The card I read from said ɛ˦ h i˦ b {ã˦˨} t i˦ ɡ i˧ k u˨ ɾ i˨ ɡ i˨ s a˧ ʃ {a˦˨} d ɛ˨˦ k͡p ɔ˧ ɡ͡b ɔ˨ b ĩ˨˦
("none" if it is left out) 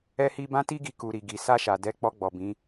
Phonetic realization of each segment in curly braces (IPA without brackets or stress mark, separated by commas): ã˦, a˨